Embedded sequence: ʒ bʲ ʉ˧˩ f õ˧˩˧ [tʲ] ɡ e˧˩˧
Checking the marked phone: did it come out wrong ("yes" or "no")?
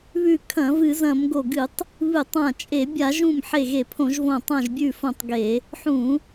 yes